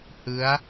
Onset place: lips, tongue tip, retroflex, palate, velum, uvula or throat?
throat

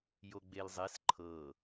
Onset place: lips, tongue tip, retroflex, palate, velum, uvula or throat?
palate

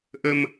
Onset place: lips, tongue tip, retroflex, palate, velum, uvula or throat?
throat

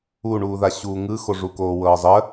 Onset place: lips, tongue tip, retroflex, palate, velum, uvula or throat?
retroflex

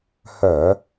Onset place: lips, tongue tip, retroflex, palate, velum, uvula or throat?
throat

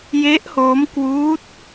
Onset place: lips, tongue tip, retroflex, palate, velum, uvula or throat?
palate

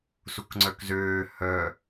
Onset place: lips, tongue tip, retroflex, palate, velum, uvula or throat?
tongue tip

